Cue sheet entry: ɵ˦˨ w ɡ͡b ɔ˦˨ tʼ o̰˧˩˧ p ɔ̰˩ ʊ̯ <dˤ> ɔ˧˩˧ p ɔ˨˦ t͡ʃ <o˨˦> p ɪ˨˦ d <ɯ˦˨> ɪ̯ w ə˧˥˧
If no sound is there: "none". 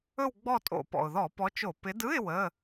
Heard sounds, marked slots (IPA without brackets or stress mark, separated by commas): ð, o˧˩˧, ɯ˧˥˧